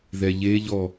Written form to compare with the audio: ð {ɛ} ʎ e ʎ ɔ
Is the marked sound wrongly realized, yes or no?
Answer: no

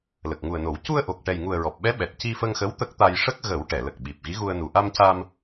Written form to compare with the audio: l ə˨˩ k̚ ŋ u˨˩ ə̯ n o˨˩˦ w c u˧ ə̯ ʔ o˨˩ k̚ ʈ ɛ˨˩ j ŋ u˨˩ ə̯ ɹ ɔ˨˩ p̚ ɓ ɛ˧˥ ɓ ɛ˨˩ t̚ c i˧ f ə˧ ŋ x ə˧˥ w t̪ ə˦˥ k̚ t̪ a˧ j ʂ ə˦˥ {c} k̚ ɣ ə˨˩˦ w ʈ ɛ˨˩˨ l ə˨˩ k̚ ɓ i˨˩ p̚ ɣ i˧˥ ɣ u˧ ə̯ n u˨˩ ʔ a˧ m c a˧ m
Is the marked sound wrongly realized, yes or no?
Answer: yes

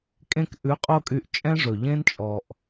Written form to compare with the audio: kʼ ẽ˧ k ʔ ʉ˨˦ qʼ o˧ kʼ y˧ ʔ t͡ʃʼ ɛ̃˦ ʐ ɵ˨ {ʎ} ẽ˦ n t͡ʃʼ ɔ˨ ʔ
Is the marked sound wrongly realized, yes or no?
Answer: no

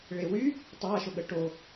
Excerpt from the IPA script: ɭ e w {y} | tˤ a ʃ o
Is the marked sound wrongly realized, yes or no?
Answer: no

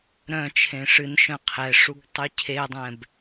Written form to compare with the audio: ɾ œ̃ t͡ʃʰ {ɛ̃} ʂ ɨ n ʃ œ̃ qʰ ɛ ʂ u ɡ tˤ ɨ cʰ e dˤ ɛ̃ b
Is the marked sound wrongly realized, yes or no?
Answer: yes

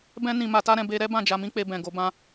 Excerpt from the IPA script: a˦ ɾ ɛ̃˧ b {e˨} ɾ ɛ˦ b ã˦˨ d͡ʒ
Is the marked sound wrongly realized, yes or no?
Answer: yes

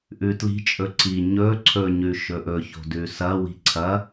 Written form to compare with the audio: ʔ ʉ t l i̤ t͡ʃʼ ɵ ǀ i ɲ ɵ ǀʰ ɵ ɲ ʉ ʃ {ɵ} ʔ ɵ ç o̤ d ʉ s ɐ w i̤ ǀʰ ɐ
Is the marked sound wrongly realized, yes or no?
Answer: no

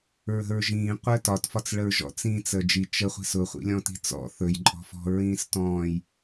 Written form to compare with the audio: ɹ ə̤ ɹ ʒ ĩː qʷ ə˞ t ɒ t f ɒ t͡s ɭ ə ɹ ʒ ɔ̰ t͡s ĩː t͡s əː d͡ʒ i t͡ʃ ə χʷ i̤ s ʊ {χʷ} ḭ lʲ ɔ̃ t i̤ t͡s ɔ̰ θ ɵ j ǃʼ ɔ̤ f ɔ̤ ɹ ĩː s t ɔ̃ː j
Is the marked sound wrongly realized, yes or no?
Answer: no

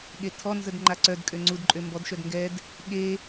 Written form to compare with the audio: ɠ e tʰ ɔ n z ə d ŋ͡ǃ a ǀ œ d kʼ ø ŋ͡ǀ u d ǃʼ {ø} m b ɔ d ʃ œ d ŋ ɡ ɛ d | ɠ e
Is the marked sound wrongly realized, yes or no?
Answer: no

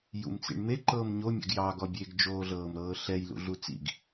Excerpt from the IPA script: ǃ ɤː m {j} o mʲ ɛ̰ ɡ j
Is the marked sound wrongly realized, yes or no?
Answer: yes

